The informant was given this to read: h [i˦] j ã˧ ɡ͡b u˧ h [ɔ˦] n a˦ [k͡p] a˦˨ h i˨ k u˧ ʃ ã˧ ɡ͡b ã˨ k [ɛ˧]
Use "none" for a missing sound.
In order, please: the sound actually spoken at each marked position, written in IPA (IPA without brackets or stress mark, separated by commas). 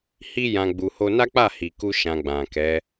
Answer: i˦, o˦, k͡p, ɛ˨˦